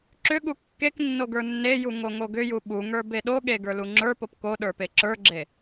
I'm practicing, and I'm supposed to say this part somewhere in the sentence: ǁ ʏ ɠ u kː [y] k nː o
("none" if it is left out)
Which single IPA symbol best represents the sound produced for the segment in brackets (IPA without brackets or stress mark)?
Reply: e